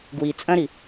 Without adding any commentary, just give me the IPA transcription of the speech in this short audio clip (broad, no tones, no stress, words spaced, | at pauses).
ɡwi t͡sʼɐ̃ɾi